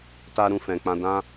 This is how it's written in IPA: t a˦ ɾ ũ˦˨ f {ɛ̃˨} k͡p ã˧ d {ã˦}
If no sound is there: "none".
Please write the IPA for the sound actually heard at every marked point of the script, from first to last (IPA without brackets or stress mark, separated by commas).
ɛ̃˨, ã˦